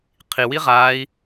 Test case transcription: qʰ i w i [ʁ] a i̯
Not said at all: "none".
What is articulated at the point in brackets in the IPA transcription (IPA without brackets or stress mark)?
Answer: ʁ